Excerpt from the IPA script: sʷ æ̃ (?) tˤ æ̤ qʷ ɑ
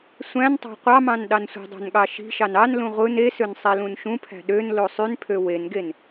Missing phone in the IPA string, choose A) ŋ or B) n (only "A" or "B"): B